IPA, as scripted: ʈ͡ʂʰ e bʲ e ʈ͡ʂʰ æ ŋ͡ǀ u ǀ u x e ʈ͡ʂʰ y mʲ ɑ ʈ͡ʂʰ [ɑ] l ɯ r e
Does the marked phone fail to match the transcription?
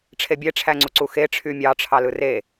no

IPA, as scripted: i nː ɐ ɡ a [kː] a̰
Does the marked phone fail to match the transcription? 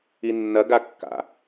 no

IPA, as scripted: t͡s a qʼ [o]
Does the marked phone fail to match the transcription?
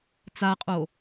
no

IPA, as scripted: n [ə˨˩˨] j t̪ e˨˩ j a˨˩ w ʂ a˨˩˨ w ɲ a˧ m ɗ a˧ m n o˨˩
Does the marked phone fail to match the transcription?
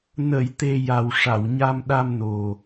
no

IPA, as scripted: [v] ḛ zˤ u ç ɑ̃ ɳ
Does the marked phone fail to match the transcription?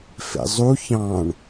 yes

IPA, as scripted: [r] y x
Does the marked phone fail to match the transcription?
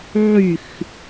yes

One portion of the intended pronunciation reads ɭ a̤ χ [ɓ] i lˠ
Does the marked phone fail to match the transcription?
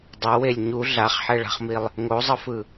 yes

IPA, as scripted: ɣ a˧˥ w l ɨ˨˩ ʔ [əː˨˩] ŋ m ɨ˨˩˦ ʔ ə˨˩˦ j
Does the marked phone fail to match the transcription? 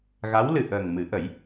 no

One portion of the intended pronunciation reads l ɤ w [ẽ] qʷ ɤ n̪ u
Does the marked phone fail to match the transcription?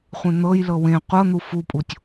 no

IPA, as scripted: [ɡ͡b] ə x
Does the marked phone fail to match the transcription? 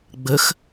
no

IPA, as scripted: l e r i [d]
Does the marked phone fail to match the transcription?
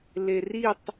yes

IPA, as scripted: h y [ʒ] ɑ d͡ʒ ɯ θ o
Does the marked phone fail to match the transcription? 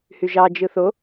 no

